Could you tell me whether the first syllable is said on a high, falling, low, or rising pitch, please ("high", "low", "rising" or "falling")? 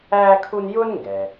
high